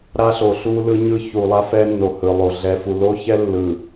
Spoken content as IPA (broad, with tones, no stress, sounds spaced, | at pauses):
ɾ a˦ ɬ o˨ ɬ u˦ l ɯ˦ ɲ ɯ˦ ç u˨ lˠ a˦ f ɛ˦ nː o˨ h ɯ˨ lˠ o˨ ɮ ɛ˨ f u˨ l o˦ ç ɛ˦ lː ɯ˨